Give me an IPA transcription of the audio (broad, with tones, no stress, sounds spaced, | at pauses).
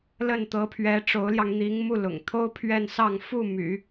l ə˥˩ n t̪ ɤ˧˥ pʰ ɥ ɛ˧˥ ʈ͡ʂ o˧˥ ʊ̯ l j ɑ˧ ŋ n̪ i˧˥ ŋ m u˥˩ l ʊ̰˨˩ ŋ t̪ʰ o˥ ʊ̯ pʰ ɥ ɛ˥˧ n s ɑ˥˧ ŋ f u˥˩ m y̰˨˩˦